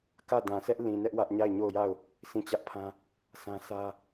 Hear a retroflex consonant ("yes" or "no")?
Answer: no